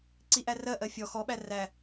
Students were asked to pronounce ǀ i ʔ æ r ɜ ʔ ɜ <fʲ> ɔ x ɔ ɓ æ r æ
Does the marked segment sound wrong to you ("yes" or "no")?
no